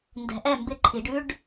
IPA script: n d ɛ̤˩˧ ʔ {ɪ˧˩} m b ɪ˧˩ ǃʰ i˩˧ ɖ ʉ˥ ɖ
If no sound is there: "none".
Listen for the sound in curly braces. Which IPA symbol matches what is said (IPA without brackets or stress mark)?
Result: ɛ˧˩